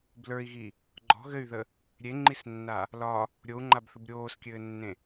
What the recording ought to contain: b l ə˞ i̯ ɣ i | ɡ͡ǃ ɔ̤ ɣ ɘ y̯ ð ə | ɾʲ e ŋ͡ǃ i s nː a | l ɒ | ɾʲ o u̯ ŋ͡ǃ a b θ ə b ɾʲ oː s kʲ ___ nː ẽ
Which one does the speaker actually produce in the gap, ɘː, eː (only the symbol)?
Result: ɘː